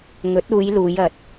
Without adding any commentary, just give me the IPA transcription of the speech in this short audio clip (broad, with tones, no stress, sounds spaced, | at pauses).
ŋ ɵ˨˥ t̚ uː˨˧ j l uː˨˧ j ɐ˨ t̚